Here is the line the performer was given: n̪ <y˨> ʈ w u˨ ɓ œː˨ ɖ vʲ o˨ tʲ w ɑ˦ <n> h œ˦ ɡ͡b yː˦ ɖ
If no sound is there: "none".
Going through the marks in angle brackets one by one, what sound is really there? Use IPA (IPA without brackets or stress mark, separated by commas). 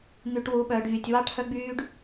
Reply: y˨, ʈ